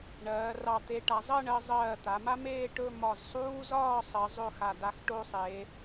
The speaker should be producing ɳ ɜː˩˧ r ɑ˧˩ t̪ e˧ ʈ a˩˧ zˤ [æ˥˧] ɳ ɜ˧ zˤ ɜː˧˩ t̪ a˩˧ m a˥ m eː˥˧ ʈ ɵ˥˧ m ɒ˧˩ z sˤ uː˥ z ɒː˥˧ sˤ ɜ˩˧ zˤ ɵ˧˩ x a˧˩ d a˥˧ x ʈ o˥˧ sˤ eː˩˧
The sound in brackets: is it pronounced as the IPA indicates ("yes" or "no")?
no